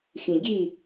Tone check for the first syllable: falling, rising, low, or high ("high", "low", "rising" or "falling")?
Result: low